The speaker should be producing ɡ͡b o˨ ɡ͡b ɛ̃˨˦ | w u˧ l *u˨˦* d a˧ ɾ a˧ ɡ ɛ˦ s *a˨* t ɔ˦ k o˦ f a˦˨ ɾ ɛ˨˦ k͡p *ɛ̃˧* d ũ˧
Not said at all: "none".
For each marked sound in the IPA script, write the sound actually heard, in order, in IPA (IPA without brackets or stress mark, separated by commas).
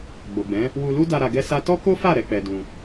u˦, a˦, ɛ˧